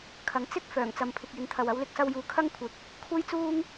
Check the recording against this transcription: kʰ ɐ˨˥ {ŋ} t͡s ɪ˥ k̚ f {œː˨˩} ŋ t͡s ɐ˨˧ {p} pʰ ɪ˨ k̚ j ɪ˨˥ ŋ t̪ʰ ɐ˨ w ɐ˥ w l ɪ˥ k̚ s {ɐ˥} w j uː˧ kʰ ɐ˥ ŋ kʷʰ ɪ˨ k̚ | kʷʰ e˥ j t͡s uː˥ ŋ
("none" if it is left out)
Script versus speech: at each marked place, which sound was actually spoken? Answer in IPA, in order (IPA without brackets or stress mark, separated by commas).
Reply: ŋ, œː˨˩, m, ɐ˥